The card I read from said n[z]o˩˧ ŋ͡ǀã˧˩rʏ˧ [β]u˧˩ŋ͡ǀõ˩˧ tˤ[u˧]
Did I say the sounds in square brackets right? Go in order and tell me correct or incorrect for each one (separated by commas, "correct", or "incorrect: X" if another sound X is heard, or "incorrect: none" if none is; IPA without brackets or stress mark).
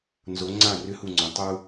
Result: correct, incorrect: h, correct